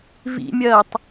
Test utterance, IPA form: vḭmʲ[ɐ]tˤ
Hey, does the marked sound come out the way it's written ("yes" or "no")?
no